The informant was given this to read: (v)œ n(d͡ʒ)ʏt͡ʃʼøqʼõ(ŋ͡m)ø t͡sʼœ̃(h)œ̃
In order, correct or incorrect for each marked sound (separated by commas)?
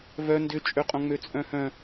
correct, incorrect, correct, correct